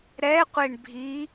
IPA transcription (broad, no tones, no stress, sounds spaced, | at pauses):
ɾ ɛ qʷ e ɳ bʱ i